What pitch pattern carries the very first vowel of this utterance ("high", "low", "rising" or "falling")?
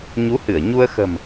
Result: rising